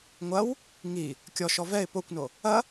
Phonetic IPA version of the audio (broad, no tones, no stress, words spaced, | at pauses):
ŋʷɐw | ŋi | kʲɔʃɔ vɛɪ̯ pokʷno | ɐ